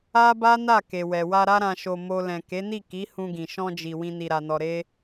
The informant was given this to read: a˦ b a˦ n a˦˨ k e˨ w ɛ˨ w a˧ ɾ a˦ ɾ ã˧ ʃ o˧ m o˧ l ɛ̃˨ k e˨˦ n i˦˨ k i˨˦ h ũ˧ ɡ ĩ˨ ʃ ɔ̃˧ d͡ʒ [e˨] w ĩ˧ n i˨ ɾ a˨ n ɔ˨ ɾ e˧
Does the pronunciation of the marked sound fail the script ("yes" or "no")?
yes